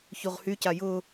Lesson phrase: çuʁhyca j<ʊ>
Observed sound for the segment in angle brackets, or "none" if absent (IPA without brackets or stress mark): ʊ